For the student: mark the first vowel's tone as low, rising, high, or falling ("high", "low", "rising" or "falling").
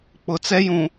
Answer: low